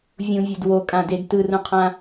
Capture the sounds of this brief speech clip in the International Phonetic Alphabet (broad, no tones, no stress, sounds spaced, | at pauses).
vʲ ũ vʲ o d w o kʼ ã d e d t ɯ r ũ qʰ ã